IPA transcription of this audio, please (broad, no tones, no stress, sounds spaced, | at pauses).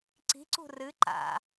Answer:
ǀ i̤ ǀ ṳ r ɨ ǃ a̰